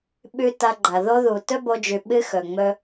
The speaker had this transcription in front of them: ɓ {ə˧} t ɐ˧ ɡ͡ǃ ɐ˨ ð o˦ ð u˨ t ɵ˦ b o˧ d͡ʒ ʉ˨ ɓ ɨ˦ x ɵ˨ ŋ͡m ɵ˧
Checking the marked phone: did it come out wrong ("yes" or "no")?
yes